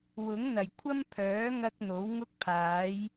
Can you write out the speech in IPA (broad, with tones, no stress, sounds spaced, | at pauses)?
w ʊ˨˥ ŋ n̪ ɐ˨˩ j kʷʰ ɐ˥ m pʰ œː˨˥ ŋ ɐ˧ k̚ n̪ o˨˥ w ŋ ʊ˥ k̚ pʰ aː˨˥ j